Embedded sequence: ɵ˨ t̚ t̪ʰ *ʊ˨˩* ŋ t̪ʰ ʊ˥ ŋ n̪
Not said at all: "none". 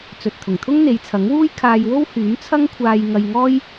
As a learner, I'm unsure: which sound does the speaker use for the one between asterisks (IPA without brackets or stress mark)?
ʊ˨˩